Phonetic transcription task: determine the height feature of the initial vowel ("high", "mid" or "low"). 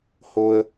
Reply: mid